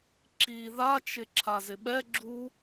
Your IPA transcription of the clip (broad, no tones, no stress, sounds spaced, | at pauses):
ǁ i ð a t͡ʃ ɪ ǁʰ a z ɪ ɓ ɛ ɡ͡ǁ u